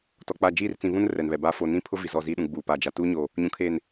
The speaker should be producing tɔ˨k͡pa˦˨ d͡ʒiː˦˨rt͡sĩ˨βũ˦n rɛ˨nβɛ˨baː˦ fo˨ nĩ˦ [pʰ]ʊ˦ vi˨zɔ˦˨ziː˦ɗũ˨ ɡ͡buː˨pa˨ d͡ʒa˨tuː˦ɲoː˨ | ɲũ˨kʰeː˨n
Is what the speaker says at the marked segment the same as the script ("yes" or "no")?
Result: yes